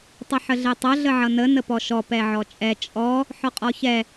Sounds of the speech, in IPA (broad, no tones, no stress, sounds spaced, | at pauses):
tˤ ə ħ ə ɮ ɛ tˤ ʌ ɮ ə ʕ ʌ n ə n ə p ɔ ʃ ɔ p ɛ ʕ ɔ t͡ʃʼ ɛ t͡ʃʼ ɔ | ħ ɔ qʼ ɔ ç ɛ